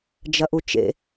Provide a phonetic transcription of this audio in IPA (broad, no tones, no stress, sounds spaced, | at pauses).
d͡ʒ ɐ ʔ u t͡ʃ ḛ